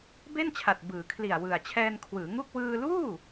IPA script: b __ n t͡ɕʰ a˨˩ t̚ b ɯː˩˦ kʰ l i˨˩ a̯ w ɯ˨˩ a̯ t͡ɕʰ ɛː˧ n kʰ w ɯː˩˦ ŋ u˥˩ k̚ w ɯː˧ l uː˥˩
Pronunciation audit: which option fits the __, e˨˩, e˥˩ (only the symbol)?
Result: e˥˩